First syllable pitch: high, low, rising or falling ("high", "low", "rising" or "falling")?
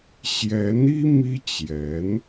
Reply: rising